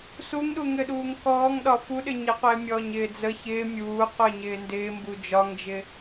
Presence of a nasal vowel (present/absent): absent